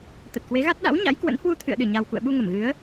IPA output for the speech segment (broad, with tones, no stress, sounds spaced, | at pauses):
t̪ ə˨˩ t̚ k w e˨˦ ɣ a˦˥ t̚ ɗ a̰˧˥ w ɲ a̰˧˥ j k w ə̰˧˥ n h w u˧ t̪ʰ ɨ̰˧˨ ə̯ ɗ ɨ˧˩ ɲ a˨˩ w k ṵ˧˨ ə̯ ɓ u˧ ŋ ə˧˩ m ɣ ɨ˨˦ ə̯